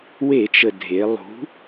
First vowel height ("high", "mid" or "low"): mid